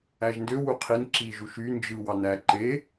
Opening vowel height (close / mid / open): open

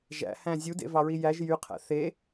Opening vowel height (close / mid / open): open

